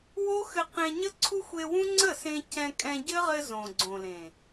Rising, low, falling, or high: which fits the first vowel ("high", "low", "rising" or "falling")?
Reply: high